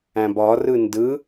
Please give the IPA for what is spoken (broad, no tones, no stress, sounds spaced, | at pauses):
æ̃ b ɒ r ɯ n d ɯ